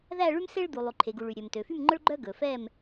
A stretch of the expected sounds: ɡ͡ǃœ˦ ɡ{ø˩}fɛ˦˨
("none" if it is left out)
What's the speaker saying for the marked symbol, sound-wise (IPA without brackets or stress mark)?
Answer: ɵ˩